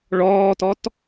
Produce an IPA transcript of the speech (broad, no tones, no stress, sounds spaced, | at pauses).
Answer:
ɭ ɔː t ɔ t